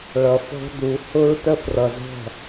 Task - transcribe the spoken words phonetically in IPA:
ɭʌ˨fɔ̤˦du˨˦ hʊ˧ɹtə˧ frʌ˨zɔ̤˦˨

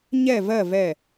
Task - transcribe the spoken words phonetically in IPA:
ɲɛ˥˨vɜ˥˨ vɛ˧˩

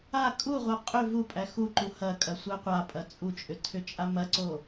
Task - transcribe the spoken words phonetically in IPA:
a kʼuʁʷa qʼʏ vupʼæ xuǃu hɐkʼɐ sʷæqʷapʼɐ t͡sʼut͡ʃʼʏ tʰʏt͡ʃʼamɐǀo

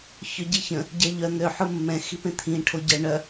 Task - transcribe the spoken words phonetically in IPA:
çœɟiçə̃ | ɟɛʎœ n̪ø ħʊmːɛ̃ xipẽt̪ʰĩ ʈʰoɟɛ ɳœ

